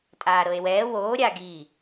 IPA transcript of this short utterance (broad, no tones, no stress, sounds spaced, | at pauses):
tʼ aː ɾ ɤ e̯ w ɛː w oː ɾʲ a ɡ iː